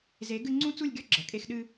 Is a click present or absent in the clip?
present